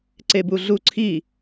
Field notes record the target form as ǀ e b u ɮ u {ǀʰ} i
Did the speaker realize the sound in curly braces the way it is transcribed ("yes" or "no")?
yes